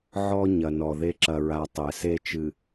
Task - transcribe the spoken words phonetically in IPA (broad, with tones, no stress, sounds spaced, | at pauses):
ʕ ɔ˦ ɲ ɐ˨ n ɔ˨ ð e˦ ǁ ɐ˨ ɹ a˨ tˤ ɛ˨ s e˦ t͡ʃ ɨ˨